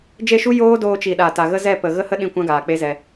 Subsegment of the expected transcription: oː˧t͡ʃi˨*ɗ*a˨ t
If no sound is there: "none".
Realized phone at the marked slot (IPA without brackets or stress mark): ɗ